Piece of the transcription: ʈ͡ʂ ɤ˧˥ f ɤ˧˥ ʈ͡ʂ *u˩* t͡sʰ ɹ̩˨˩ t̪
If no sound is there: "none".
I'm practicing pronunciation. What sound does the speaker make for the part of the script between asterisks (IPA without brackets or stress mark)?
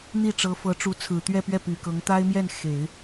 u˧˥